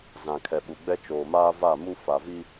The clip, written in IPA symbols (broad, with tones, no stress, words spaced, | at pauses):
zã˨kʰɛ˨ɓu˨ɡ͡bɛ˦ t͡ʃoː˨maː˦ va˦˨mu˦ fa˨vi˦